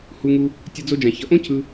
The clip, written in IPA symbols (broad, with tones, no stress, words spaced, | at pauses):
hu˧ŋu˧ | tʲʌ˧d͡zo˧d͡ʒã˨ çʌ˨ʔõ˦ cʰɯ˧